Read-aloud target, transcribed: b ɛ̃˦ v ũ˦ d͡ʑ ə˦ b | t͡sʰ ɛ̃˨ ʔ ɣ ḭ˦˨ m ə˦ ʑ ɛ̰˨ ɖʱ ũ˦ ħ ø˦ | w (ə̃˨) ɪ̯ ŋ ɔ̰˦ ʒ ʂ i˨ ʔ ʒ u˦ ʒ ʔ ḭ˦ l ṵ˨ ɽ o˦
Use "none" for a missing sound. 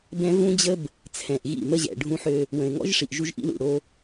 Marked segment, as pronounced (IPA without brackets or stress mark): ə̃˨